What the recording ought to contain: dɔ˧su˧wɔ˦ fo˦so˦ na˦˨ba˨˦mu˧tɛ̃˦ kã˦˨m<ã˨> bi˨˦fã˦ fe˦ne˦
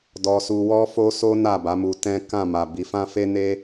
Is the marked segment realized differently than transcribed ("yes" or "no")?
yes